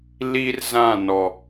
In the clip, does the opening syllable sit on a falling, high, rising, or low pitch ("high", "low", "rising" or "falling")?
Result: high